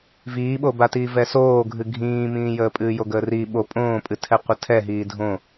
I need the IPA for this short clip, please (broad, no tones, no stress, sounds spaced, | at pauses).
v iː ɓ o b a t iː v ɛ s oː ɡʱ ɨ ɡʱ ĩː m ĩː j əː pʼ ɨː j o ɡ əː r i ɓ o pʼ õː pʼ ɨ tʰ ɛ qʷ ə tʰ ɛ ɦ iː dʱ õ